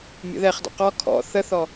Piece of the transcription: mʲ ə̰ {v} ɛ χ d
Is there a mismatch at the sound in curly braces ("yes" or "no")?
yes